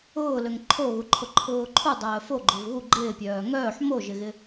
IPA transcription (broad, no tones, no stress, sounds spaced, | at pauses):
ʊː l ø ŋ ǃʰ o ɣ u ǃʰ ʊ ǃʰ ʊː ǃʰ u dˤ œː f o ɡ͡ǃ o v ɣ u ɡ͡ǃ ɪː pʲ œː ŋ œː ħ m o ʒ ɪ ɣ ɪ